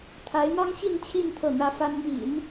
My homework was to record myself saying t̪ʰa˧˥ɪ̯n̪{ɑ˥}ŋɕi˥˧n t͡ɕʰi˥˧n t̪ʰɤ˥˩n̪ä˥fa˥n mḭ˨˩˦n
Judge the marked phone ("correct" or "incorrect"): correct